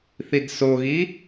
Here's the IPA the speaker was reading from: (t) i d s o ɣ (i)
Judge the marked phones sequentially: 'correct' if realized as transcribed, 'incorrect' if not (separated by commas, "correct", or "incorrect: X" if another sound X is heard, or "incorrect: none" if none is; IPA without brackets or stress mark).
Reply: incorrect: θ, correct